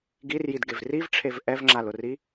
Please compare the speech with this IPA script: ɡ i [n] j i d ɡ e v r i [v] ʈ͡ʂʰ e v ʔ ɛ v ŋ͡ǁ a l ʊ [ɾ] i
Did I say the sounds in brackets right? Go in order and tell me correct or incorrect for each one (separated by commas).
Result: incorrect, correct, incorrect